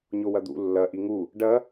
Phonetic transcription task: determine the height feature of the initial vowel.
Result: mid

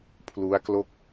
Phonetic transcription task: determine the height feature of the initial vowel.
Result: high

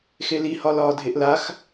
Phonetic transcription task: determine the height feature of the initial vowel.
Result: mid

